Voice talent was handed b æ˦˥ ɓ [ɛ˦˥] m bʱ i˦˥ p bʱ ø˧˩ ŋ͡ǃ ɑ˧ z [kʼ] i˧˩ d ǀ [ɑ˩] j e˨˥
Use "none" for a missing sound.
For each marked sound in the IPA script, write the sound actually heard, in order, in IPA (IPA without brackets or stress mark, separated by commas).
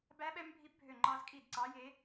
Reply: ɛ˦˥, kʼ, ɑ˨˥